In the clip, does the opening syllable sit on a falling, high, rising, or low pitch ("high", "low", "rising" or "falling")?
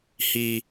high